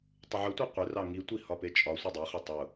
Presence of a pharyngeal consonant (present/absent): present